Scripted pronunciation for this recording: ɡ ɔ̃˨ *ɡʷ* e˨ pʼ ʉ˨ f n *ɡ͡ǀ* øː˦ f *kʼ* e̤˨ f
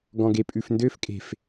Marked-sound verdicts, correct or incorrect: incorrect: ɡ, incorrect: d, correct

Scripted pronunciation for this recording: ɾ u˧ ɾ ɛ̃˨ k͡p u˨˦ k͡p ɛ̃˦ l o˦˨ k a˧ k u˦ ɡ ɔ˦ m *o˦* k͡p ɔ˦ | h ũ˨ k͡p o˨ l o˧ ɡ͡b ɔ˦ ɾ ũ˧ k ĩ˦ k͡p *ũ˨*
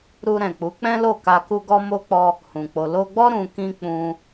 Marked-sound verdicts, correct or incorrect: correct, incorrect: ũ˦

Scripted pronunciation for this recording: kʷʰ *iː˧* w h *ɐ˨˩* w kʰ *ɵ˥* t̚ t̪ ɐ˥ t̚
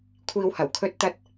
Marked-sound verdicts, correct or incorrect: correct, correct, correct

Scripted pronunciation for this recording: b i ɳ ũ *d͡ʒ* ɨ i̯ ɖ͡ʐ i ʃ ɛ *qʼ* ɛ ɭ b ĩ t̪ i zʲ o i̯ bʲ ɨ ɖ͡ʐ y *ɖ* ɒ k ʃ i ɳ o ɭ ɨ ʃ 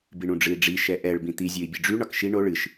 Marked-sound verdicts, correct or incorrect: incorrect: ɖ͡ʐ, incorrect: ʔ, incorrect: ɳ

